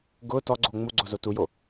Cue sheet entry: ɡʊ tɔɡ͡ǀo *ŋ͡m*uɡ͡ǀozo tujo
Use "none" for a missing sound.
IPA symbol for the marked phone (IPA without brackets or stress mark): ŋ͡m